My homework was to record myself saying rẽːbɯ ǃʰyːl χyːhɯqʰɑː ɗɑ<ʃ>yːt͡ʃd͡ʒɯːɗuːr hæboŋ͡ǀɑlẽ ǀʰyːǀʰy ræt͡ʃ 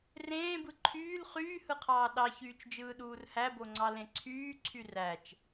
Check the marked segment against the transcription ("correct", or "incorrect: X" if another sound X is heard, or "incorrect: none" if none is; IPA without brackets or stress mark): incorrect: ç